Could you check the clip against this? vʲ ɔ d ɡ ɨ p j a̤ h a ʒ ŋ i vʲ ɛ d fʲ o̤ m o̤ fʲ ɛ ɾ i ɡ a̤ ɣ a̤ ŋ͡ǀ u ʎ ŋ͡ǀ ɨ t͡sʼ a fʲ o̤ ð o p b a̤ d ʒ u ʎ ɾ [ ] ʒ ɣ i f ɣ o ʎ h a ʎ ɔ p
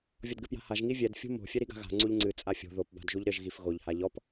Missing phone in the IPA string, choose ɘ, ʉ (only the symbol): ɘ